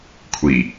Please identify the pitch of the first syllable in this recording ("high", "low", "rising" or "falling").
low